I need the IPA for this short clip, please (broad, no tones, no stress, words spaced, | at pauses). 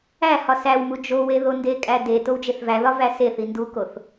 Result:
æ hɒsæwmu d͡ʒowe ðondekʼæ de towd͡ʒeθvæðɒ væseθi ndukoθ